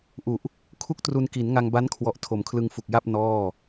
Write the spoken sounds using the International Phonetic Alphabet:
ʔu˨˩ʔ | kʰu˥˩k̚tru˧nki˩˦n ŋa˧ŋba˦˥nkʰwɔ˨˩ʔ tʰo˩˦mkʰlɯ˧ŋfu˨˩k̚ja˥˩p̚ nɔː˥˩

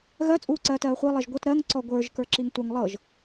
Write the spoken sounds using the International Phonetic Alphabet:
ɣɜ t͡sʼuːǀɜːtɜːχʷɤ lˠɛʒɡʷɤt ɾɜŋ ǀɔɡʷə˞ʒ kə˞ǁiŋtʷɐŋ lˠɤʒ

